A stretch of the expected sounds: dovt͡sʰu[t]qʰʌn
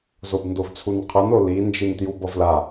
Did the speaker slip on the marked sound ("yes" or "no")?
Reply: yes